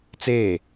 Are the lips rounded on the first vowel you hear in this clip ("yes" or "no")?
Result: no